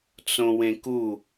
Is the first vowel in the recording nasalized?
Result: yes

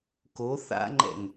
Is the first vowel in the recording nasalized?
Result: no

